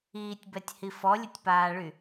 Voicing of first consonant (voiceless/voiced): voiceless